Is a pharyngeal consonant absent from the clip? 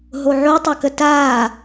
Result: no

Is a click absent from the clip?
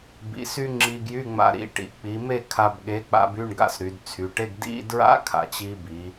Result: no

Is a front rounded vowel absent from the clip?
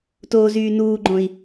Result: no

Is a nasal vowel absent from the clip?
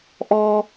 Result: yes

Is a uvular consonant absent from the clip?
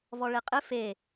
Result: no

